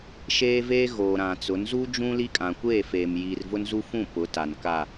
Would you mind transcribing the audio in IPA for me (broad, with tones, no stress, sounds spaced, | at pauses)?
ʃ eː˦ v eː˦ ɣ oː˨ ɾ ã˨ t͡s ʊ˨˦ n z u˦ d͡ʒ ũ˦ l i˦ kʼ ã˨ kʷ eː˦˨ f eː˨ m j iː˨ r v ʊ˦ n z u˦ f ũ˦˨ p ʊ˨˦ t a˨ n k a˦˨